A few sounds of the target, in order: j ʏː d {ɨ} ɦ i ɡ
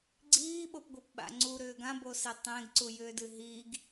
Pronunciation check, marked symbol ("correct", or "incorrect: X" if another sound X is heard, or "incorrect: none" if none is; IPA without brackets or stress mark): correct